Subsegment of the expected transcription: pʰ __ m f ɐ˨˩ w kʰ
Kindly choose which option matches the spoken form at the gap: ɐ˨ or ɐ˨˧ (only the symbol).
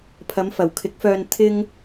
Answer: ɐ˨˧